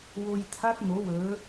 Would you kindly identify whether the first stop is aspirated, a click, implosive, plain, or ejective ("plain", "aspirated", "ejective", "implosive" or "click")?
aspirated